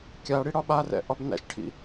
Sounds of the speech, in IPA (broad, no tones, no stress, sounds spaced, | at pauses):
kʲ a ɽ i ɽ ɒ ɓ a r ɛ̰ ʔ ɒ b n æ̰ ʃ ʈʰ ḭ